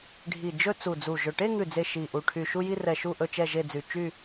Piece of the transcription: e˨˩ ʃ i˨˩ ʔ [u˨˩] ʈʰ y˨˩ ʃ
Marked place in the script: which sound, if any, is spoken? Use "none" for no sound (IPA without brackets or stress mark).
u˨˩